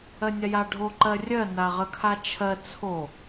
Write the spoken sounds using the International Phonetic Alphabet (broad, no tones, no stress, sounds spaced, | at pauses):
ɜ nʲ a j a ɖʱ o ǃ ɜ rʲ ɜ n a ʁ ə kʰ a t͡ʃʰ ɜ t͡sʰ o